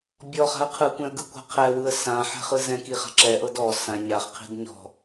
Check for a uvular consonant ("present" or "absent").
present